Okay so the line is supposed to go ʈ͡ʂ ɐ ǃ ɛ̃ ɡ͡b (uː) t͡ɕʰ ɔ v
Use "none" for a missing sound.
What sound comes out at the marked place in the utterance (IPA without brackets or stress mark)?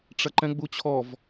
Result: u